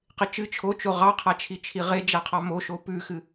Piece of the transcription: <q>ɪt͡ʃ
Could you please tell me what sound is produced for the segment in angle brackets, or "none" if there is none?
q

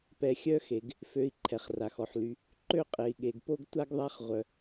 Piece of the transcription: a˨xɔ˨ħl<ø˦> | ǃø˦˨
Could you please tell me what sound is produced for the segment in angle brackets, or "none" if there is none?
y˦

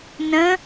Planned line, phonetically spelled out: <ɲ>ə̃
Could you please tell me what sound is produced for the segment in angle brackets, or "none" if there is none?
n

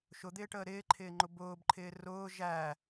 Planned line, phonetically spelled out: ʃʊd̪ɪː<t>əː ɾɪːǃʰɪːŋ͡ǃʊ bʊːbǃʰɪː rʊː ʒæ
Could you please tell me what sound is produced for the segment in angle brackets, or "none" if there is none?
ʈ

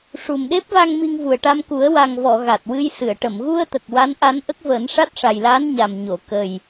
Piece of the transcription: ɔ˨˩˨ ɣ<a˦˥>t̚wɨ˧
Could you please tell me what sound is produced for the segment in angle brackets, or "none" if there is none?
a˨˩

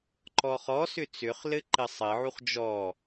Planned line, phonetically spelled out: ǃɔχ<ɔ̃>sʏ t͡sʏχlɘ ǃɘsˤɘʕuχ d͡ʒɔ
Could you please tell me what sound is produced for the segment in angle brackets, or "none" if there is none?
ɔ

